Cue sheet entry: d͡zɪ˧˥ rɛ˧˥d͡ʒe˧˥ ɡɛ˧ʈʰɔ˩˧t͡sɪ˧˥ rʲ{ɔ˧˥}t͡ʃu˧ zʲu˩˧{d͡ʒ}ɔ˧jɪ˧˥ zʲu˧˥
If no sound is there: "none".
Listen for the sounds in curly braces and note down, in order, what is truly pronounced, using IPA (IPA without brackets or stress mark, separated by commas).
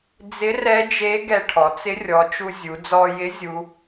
ɔ˩˧, d͡z